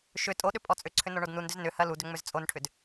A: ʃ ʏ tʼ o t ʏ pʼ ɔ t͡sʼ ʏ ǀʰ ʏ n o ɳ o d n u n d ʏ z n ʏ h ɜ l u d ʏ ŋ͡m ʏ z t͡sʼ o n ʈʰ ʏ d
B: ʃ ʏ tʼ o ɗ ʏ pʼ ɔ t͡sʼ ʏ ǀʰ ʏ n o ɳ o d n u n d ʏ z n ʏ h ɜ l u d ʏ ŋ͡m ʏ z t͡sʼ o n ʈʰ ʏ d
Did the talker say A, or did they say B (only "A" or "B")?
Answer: B